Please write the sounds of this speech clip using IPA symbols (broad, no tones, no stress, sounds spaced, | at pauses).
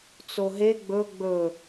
t͡s o ɦ e ɡ͡b ɵ ɡ͡b ɵ